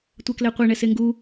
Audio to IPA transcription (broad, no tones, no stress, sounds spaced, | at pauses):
tʷ ɛ k l ɛ qʷ ɛ ɳ ɛ s e ŋ ɡ u